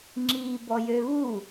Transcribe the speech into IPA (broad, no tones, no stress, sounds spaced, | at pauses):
ŋ͡ǁ iː b ɔ j ø β u